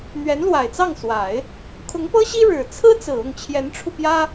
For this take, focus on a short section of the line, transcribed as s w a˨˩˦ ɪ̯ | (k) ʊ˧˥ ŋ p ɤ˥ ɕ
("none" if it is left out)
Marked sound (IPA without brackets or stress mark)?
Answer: kʰ